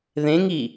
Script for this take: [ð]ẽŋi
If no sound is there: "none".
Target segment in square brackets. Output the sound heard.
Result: ð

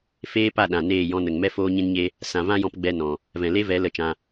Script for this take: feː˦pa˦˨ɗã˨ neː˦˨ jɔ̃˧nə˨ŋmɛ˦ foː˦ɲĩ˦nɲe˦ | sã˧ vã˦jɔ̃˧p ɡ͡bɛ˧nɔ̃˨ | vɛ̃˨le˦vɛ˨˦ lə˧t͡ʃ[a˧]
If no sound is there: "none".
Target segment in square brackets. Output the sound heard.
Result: ã˧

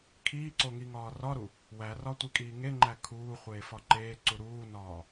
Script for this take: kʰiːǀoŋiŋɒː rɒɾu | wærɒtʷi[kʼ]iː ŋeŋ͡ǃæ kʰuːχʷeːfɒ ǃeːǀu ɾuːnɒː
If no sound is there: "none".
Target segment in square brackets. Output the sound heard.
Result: kʼ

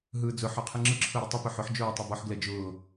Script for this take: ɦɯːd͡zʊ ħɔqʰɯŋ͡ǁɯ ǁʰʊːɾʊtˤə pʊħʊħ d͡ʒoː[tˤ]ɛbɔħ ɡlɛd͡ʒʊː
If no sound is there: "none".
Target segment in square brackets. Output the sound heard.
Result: tˤ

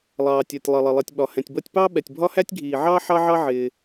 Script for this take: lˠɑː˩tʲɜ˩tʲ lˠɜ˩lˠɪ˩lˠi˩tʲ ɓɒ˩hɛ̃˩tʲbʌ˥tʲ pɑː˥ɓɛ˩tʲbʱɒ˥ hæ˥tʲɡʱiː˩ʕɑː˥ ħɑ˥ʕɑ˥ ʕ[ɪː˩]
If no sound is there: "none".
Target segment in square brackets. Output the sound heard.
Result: ɪː˩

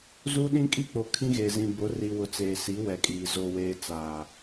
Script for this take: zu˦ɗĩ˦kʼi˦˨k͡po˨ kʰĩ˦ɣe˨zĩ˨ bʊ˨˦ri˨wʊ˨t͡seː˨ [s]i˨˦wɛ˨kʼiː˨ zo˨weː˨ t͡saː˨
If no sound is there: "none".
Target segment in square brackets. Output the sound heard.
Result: s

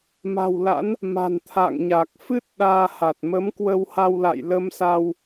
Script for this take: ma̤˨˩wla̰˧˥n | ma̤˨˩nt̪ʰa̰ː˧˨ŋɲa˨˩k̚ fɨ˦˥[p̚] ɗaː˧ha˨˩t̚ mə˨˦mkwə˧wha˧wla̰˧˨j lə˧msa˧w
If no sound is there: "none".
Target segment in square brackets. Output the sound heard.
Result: t̚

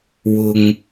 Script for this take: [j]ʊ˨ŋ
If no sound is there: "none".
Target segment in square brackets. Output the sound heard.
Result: w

